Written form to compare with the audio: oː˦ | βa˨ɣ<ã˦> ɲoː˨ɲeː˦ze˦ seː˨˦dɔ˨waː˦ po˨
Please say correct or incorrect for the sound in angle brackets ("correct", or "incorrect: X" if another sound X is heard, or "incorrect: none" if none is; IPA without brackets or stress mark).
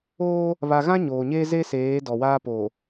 correct